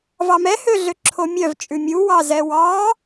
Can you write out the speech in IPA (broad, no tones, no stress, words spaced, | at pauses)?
vɑmɛ høɮøǁʰomʲœv t͡ʃʼʉmʲu wɑzɛwɑ